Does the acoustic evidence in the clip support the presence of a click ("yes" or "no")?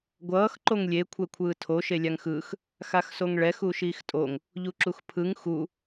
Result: yes